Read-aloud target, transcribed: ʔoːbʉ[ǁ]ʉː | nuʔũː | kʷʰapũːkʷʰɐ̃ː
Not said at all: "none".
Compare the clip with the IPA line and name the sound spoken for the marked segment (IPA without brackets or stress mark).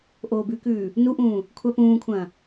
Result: k